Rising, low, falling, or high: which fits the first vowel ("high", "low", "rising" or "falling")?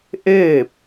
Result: falling